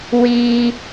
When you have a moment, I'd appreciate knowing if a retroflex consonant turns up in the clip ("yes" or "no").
no